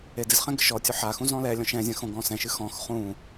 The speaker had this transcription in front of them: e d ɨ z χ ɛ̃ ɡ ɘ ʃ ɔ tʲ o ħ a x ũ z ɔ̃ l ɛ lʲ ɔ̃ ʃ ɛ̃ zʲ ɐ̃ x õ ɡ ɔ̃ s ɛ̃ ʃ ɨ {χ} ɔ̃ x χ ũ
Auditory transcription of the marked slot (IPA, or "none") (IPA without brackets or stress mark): x